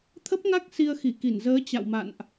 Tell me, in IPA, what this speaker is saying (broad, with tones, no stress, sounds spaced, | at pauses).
t̪ʰ ə˦˥ p̚ ŋ a˦˥ k̚ s i˧ ə̯ x i˧˩ k i˧˩ n z əː˨˦ t͡ɕ a̰˧˨ w m a̰˧˨ n ʔ